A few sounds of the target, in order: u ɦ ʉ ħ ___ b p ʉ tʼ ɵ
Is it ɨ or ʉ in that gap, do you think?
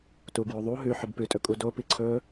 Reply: ɨ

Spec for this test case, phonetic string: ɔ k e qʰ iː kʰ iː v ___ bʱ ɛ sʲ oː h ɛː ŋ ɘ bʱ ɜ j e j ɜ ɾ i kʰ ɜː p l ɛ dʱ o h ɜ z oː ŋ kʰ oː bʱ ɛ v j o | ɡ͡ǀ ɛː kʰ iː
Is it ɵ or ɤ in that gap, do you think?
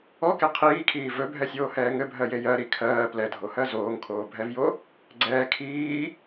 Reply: ɵ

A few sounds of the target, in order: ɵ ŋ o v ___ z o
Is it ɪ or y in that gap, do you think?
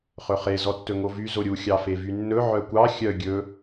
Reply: y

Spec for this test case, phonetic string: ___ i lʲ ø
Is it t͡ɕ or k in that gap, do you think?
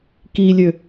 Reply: k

